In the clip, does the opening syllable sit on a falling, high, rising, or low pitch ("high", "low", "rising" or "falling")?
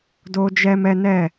high